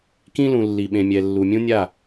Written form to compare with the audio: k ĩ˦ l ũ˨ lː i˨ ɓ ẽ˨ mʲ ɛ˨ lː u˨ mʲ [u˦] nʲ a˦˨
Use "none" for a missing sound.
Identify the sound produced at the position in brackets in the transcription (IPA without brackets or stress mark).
ũ˦